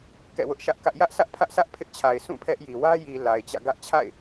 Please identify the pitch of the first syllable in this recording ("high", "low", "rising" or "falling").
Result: falling